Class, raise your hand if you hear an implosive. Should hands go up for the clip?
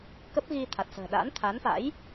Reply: yes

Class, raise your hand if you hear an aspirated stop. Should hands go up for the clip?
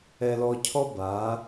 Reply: yes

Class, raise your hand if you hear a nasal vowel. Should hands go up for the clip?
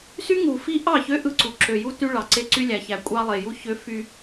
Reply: no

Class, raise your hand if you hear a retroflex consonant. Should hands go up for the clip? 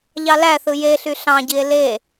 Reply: no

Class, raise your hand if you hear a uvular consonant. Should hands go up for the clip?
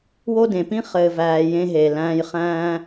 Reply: yes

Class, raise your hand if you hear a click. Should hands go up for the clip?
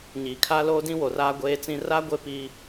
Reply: no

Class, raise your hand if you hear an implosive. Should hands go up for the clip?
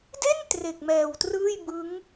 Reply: no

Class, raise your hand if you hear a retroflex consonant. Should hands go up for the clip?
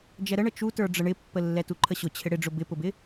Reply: yes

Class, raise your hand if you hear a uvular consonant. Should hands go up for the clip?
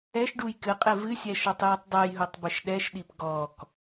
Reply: yes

